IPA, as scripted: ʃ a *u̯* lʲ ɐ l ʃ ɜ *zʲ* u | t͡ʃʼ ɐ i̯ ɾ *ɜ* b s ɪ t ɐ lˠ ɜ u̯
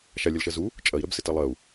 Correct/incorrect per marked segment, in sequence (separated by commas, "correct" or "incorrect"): incorrect, incorrect, correct